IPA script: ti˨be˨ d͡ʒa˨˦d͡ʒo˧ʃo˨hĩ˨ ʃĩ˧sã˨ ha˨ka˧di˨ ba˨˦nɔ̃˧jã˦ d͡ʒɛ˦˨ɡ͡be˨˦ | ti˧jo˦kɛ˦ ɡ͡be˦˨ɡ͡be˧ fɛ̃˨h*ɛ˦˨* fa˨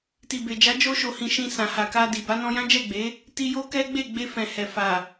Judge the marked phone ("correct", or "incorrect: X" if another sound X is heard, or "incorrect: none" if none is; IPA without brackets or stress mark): incorrect: ɛ˨